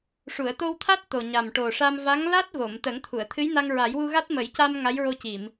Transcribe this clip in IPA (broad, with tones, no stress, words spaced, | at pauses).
ʂu˨˩˨ə̯t̪o˧wt̪ʰa˦˥t̚ t̪o˨˩ɲa˨˩mʈo˨˩ʂa˧m va˧˥ŋla˦˥t̚ vo˨˩˨m t̪əː˨˩˦ŋt̪ʰu˨˩˨ə̯t̪ʰɨ˧˥jna˧ŋ ɹa˨˩˦jwu˧ɣa˦˥t̚ mə˨˩˦jca˧m ŋa˧˥jɹo˧ci˨˩˨m